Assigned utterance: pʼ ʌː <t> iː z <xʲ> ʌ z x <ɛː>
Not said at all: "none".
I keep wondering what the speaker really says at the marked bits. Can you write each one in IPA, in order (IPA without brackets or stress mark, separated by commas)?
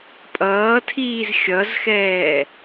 tʰ, xʲ, ɛː